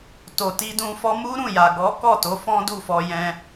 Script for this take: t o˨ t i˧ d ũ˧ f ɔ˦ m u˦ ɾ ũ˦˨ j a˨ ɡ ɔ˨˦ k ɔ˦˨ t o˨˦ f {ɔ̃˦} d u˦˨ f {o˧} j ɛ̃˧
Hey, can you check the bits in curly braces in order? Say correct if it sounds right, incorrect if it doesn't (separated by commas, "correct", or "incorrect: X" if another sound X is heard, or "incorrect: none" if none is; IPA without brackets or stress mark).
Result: correct, incorrect: ɔ˧